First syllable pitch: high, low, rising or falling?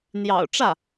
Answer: low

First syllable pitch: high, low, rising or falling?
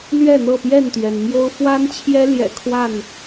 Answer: falling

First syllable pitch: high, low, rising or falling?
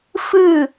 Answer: falling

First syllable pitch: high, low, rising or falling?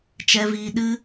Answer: high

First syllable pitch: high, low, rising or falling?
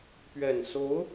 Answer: low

